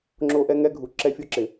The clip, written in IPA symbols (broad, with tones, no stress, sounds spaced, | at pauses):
ŋ͡ǁ o˦ ʔ ɛ˦ ŋ ɛ˦ ɡʱ u˨ ǁ ɛ˦ fʲ ʊ˦ ǁ ɪ˨